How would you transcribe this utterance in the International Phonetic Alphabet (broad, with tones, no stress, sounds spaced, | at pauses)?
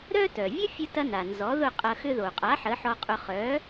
ɾ œ˥ t œ˩ vʲ ʊ˥ fʲ ə˧ t ɐ˧ n a˩ n z ɔ˩˥ ð ʊ˥˩ qʼ ɐ˧ x ʏ˧ ð o˩ qʼ a˩˥ ħ ə˩˥ ħ ɔ˧ qʼ ʊ˧ χ œ˩˥